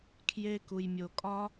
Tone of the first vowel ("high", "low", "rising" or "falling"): high